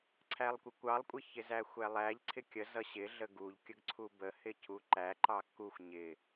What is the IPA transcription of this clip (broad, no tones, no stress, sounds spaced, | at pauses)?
ǀʰ æ lˠ kʷ ə kʷ ɑ lˠ kʷʼ ɪ ç ɪ z æ xʷ æ lˠ æ ʎ ǀʰ ɪ kʲ ə z ʌ ɕ ɪ ɮ ə ɡ u ʎ kʲ ə ɡ ǀʰ u b ə h ɪ cʰ u ǃ æ ǃ ɑ k u xʷ ɲ ɪ